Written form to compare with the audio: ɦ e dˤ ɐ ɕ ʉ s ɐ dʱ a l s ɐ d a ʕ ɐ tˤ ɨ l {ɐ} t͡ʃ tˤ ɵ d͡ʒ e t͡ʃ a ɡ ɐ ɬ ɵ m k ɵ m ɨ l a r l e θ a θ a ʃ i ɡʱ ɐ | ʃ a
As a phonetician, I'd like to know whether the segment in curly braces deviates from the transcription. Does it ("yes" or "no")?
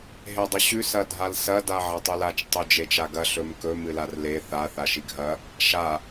yes